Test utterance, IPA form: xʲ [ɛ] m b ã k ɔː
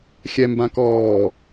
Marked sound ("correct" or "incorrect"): correct